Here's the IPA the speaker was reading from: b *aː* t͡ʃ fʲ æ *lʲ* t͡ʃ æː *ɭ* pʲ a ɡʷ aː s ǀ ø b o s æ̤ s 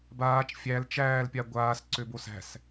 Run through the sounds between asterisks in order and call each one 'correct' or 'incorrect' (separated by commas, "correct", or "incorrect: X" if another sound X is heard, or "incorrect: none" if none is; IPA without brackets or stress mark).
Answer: correct, incorrect: l, incorrect: l